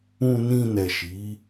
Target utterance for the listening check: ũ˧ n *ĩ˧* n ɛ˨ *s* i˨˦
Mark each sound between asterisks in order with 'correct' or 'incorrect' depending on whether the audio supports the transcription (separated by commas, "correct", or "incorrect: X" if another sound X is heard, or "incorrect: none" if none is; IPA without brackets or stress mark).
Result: correct, incorrect: ʃ